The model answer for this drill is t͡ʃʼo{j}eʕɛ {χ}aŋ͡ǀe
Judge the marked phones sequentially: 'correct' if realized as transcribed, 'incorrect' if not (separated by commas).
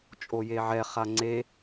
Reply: correct, correct